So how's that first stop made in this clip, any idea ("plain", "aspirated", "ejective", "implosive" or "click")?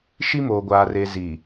plain